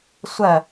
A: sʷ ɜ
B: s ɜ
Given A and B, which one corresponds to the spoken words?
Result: A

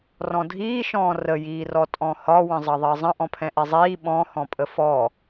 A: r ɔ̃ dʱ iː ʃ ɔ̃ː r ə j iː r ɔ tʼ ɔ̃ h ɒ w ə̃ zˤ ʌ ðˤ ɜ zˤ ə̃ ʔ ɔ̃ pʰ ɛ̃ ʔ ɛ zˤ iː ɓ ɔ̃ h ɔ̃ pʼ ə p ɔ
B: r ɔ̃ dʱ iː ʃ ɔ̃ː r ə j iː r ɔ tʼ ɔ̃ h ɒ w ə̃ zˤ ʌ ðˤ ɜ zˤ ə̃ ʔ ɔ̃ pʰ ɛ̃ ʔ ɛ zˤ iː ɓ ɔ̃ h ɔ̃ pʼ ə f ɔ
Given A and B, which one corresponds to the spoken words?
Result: B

